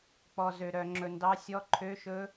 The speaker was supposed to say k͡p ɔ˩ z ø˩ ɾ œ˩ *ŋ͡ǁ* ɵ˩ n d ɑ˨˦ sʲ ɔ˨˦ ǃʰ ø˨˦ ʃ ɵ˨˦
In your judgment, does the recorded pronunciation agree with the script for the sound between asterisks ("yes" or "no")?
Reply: yes